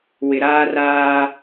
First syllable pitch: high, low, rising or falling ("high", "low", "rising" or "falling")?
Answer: low